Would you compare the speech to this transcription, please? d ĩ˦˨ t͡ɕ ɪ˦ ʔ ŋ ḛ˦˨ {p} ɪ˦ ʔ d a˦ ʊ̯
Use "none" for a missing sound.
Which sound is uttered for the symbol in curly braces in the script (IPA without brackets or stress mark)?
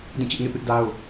p